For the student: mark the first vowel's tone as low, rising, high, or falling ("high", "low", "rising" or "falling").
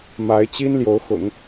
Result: rising